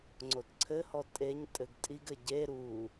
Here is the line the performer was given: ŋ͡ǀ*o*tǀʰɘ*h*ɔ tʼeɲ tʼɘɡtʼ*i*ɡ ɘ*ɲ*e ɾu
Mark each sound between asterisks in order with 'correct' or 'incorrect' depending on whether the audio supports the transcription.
correct, correct, correct, incorrect: ɟ

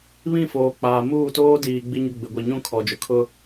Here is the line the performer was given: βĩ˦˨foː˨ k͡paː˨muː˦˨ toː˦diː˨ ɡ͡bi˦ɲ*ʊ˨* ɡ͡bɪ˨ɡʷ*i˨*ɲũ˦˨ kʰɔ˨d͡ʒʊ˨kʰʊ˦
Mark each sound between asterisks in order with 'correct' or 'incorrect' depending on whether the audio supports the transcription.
incorrect: ʊ˦, correct

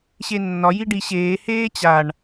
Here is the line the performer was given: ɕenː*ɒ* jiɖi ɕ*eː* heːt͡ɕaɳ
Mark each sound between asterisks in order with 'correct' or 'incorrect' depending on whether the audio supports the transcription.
correct, correct

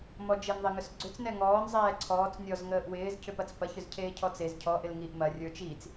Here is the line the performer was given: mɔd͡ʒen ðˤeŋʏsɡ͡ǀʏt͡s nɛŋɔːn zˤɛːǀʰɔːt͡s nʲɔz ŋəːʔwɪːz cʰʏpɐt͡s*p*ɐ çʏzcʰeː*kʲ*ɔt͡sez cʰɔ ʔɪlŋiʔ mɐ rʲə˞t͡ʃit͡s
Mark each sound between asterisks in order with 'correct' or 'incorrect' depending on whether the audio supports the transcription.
correct, incorrect: cʰ

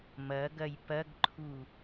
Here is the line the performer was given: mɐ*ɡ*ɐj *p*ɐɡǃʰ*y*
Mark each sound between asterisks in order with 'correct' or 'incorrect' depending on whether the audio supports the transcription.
correct, correct, incorrect: u

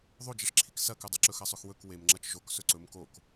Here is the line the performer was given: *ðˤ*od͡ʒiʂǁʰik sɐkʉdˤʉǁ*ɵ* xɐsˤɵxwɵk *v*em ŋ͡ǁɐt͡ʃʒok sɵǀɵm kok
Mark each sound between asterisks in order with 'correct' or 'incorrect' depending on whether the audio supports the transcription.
correct, correct, incorrect: w

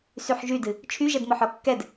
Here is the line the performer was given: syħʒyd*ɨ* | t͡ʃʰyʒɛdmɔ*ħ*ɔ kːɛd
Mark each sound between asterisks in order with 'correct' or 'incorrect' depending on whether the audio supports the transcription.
correct, correct

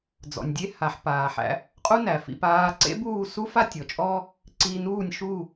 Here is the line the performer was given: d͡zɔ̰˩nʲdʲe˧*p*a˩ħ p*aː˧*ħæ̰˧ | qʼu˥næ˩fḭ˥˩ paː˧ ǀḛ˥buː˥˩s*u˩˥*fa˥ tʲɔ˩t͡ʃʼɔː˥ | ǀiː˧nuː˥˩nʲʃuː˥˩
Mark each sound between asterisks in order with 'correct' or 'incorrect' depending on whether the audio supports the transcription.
incorrect: h, incorrect: aː˩, incorrect: u˥

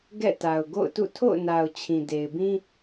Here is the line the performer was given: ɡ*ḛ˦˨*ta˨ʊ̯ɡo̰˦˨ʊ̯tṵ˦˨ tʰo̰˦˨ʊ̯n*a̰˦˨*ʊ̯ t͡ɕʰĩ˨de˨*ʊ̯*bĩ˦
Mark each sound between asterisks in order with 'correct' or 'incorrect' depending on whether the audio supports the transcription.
incorrect: ɛ̰˦˨, incorrect: a˨, incorrect: ɪ̯

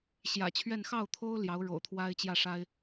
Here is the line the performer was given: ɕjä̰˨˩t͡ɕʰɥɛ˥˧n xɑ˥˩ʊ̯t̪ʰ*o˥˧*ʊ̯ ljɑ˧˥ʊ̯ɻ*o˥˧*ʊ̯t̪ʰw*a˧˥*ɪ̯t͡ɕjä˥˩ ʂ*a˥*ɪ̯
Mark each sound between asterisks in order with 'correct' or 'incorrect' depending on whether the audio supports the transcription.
incorrect: o˥, incorrect: o̰˨˩, incorrect: a˥, correct

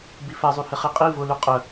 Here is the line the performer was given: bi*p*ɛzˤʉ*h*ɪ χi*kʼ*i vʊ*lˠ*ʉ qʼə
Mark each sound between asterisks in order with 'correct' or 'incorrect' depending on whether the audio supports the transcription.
incorrect: f, correct, incorrect: qʼ, incorrect: l

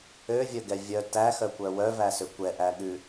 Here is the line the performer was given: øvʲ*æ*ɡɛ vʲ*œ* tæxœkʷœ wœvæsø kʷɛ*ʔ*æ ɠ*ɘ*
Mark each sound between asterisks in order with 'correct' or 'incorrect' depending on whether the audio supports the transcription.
incorrect: œ, correct, correct, incorrect: ʉ

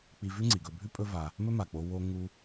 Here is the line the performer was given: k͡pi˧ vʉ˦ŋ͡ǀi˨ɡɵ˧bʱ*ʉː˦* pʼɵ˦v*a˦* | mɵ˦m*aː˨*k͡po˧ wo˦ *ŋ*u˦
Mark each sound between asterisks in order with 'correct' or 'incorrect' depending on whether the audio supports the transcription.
incorrect: ʉ˦, incorrect: a˧, incorrect: a˨, correct

